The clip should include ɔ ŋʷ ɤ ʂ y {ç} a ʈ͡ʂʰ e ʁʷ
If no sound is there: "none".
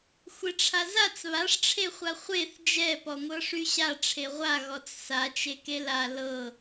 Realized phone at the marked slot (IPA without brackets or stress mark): ɕ